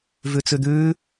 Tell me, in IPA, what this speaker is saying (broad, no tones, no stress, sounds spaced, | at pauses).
v ʉ t͡s ʉ d̪ ʉː